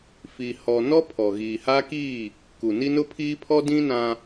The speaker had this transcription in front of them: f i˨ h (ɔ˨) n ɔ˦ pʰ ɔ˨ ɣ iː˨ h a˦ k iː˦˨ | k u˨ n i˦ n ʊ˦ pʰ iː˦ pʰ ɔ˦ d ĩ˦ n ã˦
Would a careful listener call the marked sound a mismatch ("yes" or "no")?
no